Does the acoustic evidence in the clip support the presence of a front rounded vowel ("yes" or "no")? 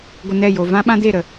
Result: no